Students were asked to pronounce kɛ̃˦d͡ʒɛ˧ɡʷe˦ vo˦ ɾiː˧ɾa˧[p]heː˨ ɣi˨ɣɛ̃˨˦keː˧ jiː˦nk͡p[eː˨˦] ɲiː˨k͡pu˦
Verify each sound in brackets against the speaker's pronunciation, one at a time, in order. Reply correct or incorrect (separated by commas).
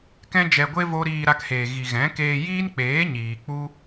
incorrect, correct